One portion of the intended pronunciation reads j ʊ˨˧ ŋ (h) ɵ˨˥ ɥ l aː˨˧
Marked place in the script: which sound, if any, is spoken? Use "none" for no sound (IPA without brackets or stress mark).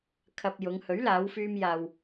h